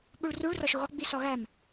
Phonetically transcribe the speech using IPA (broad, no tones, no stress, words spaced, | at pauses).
ɓuɭruɭ rɒʃoɣɒ ɡ͡bisɒɣæm